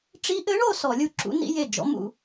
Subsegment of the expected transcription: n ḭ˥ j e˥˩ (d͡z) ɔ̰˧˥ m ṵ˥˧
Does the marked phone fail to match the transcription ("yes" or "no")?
yes